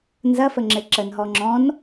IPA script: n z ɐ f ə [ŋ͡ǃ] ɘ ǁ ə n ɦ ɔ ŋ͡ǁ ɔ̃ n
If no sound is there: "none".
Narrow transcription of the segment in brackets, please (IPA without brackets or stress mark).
ŋ͡ǁ